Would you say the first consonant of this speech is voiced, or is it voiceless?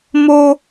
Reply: voiced